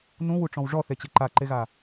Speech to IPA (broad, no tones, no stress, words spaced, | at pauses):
nũwuʈ͡ʂɔ̃w ʐɔθet͡ɕe ǃaǃeɣa